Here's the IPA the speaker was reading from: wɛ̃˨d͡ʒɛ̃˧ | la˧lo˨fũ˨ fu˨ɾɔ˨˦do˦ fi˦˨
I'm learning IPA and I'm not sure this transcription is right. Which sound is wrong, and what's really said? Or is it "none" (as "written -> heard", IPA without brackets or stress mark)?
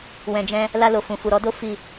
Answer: none